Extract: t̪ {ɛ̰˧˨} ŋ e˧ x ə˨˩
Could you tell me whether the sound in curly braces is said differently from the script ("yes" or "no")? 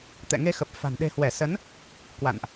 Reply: no